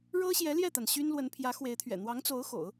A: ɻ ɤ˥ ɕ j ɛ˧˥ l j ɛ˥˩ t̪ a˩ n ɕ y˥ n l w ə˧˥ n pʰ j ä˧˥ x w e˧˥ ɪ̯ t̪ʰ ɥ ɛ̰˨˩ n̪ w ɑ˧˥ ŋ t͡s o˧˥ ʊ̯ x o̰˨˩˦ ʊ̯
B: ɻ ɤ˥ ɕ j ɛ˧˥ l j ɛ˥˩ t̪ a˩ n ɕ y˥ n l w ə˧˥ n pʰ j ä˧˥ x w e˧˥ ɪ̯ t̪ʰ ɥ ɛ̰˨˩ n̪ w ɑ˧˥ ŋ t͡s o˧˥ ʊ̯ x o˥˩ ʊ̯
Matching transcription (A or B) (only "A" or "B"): A